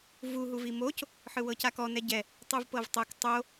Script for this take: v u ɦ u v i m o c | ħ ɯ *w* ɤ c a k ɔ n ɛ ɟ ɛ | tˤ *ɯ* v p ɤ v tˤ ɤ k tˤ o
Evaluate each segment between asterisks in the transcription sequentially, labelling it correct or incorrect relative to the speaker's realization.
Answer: correct, correct

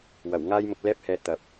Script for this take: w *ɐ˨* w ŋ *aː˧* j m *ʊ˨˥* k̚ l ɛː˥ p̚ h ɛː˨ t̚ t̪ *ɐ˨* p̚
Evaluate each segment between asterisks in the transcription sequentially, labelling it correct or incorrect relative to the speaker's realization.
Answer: incorrect: ɐ˨˩, incorrect: aː˥, incorrect: ʊ˧, correct

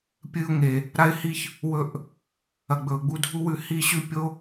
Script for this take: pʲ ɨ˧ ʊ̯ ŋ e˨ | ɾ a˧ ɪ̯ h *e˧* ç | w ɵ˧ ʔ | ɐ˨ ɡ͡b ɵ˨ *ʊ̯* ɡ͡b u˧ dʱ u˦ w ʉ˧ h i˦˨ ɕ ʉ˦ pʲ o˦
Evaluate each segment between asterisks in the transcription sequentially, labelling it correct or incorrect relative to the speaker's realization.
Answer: incorrect: i˧, correct

